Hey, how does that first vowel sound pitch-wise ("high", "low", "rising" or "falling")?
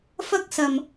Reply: high